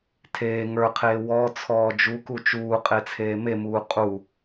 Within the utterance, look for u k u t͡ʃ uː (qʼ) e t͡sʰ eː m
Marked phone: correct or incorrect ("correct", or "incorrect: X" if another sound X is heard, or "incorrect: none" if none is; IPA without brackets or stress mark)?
correct